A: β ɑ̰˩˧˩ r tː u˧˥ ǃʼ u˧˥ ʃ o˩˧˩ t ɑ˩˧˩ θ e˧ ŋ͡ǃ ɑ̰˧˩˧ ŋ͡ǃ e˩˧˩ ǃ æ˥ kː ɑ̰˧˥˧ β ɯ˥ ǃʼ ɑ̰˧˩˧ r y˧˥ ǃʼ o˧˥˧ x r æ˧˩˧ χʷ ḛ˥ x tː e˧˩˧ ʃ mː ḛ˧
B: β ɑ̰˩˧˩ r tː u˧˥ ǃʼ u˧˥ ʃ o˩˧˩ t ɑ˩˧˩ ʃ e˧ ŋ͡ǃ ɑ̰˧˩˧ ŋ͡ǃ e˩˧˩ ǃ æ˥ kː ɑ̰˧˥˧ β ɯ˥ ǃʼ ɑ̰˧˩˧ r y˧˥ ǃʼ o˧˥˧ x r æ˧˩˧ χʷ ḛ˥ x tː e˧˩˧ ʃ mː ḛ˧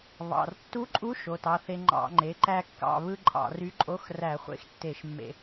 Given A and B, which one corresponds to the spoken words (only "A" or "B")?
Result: A